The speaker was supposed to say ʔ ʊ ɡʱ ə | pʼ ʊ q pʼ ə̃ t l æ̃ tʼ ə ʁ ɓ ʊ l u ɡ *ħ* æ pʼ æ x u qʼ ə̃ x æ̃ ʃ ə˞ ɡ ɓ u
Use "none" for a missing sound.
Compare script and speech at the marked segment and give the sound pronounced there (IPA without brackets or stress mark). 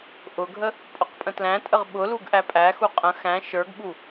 ʔ